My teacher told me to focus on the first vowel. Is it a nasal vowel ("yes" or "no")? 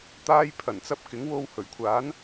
no